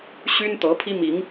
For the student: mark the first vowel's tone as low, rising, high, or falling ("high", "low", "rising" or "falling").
high